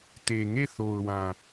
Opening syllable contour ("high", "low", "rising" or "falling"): low